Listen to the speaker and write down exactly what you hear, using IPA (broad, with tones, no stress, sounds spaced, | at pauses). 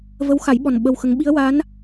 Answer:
v ə˧˥ w x a˨˩˦ j ɓ ɔ˨˩ n ɓ ə˧ w x ə˧˥ ŋ ɓ i˧˥ ə̯ w a˧˥ n